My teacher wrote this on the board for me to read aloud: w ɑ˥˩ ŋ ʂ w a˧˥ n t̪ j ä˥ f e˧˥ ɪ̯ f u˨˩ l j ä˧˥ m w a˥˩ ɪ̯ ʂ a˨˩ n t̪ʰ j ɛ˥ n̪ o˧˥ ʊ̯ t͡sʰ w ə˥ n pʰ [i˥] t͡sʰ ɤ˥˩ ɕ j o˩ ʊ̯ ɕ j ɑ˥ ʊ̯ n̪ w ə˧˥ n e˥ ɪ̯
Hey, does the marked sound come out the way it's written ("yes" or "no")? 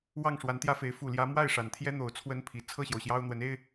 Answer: no